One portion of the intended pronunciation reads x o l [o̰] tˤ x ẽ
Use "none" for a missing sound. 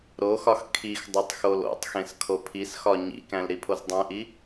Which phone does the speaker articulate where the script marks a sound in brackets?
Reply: o̰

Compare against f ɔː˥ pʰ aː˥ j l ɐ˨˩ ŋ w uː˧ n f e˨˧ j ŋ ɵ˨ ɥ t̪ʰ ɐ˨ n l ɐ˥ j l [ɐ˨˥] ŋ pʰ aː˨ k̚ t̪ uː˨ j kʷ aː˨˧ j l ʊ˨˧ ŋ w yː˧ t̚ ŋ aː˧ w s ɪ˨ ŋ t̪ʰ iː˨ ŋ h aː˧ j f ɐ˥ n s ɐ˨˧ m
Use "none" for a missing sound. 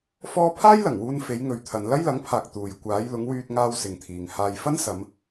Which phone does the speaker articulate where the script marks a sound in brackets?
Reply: ɐ˨˥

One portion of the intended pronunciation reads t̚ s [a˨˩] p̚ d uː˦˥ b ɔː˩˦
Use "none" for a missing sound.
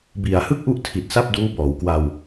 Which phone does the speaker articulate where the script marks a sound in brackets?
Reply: a˥˩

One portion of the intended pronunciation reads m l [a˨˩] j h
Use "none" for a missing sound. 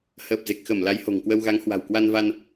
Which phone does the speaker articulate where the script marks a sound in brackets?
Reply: a˨˦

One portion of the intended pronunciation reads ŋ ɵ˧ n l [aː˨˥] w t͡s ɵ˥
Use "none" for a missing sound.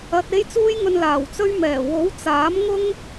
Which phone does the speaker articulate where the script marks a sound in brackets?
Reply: aː˨˩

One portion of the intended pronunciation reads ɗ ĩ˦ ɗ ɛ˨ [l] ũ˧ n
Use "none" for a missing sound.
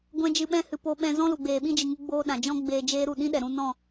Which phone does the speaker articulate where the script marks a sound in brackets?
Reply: ɾ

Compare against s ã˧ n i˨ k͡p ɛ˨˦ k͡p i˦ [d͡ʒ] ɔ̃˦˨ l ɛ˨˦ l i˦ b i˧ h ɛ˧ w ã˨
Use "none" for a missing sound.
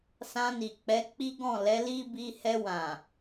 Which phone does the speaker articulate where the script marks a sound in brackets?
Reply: ɡ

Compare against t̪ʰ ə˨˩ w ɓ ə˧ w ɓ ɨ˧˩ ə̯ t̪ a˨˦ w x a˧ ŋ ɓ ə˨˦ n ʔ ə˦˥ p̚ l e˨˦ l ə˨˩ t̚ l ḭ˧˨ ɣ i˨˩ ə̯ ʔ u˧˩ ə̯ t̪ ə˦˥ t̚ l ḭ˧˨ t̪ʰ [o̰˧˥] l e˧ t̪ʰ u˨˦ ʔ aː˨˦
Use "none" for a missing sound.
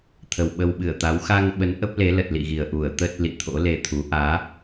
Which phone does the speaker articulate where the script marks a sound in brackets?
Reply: o̰˧˥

